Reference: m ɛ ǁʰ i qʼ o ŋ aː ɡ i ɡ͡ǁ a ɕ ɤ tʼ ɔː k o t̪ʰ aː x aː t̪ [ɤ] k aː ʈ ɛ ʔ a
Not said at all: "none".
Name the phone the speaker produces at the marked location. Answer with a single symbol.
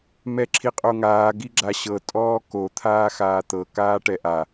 ɤ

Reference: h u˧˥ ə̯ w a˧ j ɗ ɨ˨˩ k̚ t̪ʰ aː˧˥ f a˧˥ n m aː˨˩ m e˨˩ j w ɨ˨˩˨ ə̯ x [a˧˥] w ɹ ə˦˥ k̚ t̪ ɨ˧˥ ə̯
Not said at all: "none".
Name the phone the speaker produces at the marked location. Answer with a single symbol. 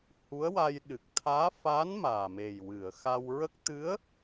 a˧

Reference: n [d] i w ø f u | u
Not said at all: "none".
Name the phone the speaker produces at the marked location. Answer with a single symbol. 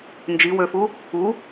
d͡ʒ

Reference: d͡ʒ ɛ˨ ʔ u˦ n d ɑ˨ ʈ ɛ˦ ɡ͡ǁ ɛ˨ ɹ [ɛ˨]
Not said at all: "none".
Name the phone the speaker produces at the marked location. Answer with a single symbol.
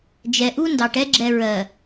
ɜ˨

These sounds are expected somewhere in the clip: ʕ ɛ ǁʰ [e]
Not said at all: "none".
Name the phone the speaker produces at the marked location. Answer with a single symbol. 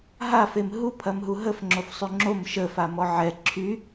y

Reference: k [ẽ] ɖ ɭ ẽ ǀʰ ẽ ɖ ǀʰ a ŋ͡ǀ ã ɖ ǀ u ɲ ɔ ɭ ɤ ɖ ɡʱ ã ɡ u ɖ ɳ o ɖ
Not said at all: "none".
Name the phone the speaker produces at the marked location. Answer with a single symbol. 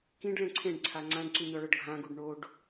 ĩ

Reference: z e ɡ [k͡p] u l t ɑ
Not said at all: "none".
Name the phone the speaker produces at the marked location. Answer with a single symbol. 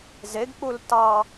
k͡p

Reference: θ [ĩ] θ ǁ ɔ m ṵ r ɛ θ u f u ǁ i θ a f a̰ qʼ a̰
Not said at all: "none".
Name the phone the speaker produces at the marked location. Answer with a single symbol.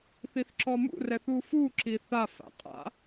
i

